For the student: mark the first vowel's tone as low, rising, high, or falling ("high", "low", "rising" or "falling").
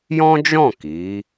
high